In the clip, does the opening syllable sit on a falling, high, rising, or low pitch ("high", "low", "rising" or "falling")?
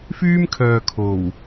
high